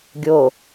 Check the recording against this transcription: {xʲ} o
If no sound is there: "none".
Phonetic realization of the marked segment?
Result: ɡʲ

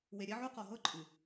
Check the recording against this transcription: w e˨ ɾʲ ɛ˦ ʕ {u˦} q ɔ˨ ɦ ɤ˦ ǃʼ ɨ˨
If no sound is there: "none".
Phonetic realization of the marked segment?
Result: u˦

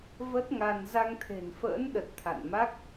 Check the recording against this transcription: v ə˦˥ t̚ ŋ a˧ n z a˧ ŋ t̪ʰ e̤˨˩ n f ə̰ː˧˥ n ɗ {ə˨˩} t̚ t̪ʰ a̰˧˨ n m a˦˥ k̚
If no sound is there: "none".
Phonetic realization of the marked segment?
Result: ə˨˩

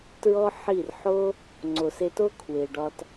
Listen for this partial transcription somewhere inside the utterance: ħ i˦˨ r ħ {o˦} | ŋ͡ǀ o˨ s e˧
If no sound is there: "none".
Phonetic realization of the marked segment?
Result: o˦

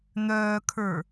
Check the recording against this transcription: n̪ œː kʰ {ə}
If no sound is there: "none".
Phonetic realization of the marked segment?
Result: ə˞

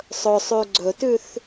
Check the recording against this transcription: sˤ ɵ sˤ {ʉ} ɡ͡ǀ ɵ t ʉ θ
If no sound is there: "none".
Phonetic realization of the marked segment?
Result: ʉ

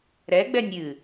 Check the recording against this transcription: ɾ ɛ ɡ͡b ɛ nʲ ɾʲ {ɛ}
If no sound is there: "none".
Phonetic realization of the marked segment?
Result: ɨ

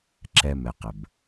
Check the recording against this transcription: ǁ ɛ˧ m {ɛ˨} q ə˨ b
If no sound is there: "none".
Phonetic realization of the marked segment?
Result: ɛ˨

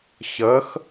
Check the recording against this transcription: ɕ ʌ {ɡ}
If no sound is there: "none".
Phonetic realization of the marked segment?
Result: x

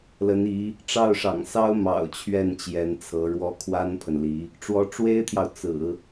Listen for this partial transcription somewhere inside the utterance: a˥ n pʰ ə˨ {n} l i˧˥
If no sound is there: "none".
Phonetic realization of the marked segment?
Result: n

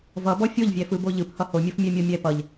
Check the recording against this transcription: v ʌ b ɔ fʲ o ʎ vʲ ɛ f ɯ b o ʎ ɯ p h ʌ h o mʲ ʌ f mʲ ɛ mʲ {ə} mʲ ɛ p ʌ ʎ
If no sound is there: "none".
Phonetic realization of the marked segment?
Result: ɔ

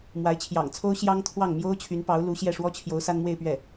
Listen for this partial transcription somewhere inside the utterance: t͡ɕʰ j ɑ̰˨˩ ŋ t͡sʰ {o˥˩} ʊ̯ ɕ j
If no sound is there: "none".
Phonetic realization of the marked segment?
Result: o˥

